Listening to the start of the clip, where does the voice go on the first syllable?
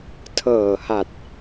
low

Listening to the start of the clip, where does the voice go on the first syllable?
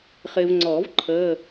low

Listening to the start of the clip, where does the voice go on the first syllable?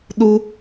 high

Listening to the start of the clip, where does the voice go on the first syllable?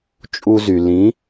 high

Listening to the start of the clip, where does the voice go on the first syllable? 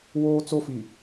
high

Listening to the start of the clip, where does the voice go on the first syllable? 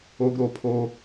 low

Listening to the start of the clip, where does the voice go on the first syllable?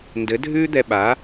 rising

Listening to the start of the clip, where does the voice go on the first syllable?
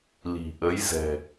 low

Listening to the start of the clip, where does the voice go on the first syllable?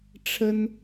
high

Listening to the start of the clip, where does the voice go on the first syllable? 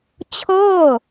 falling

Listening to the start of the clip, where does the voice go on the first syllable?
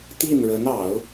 falling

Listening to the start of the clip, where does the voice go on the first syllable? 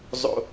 low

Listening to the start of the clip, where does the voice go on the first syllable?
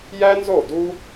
high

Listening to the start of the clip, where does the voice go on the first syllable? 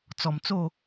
low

